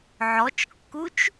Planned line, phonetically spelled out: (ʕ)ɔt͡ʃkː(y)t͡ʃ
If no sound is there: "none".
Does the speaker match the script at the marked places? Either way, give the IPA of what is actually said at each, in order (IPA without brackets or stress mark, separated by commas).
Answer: ʕ, u